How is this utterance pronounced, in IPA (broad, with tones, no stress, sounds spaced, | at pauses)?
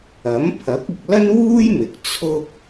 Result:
ɐ˨˥ m pʰ ɐ˨˥ k̚ ɪ˨ k̚ l ɐ˥ n w uː˥ j m ɪ˨˥ k̚ t͡sʰ ʊ˥ k̚